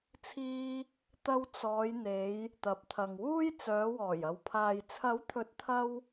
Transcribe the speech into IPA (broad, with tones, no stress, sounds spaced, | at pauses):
t͡sʰ iː˧ | t̪ ɐ˧ w t͡s ɔː˨˧ j n̪ e˨˧ j | t̪ ɐ˨ p̚ t̪ʰ ɐ˨ ŋ w uː˥ j t͡s œː˨˧ w ɔː˨˩ j ɐ˨ w pʰ aː˨ j t͡sʰ ɐ˨˥ w t̪ʰ ɵ˨˥ t̚ t̪ʰ ɐ˧ w